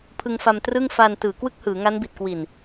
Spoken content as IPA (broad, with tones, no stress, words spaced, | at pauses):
pʰɯ˧ŋfa˧m trɯ˥˩ŋ fa˧n tɯː˩˦kwɯ˥˩k̚hɯː˩˦ŋa˦˥n bi˨˩t̚kwi˨˩n